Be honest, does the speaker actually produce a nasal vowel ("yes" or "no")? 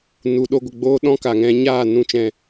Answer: yes